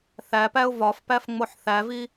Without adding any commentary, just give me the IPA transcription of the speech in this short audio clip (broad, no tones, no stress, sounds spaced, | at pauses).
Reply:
θ æ p æ ʊ̯ v ɒ f p æ f ŋ͡m o ħ θ æ v i